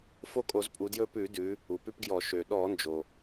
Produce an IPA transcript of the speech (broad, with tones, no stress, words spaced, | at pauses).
fo˦kʼo˧˩˧zpʼu˩˧djɵ˦˨ pʉ˧˩˧dʉ˩˧ | u˩pʉ˦pɡjɔ˧˩˧ ʃø˩ɗɔ˧˩˧nd͡ʒo˩